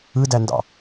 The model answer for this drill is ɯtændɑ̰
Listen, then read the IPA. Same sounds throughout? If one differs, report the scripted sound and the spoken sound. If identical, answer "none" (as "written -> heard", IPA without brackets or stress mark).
t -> d